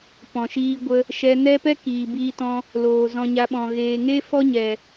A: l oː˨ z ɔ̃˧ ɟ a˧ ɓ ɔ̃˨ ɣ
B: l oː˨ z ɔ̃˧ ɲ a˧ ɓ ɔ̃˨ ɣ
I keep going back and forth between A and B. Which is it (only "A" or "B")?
B